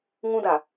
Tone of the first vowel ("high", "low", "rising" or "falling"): high